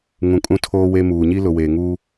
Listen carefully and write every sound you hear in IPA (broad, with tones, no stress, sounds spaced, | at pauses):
ŋ ũ˨ kʼ ũ˦ tʰ oː˦ w e˦ m uː˨ ɲ i˦ l ʊ˨ w eː˨ ŋ uː˦